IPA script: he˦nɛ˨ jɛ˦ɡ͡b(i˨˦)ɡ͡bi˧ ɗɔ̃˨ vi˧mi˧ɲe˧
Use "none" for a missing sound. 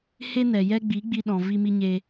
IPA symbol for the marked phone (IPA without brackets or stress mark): i˨˦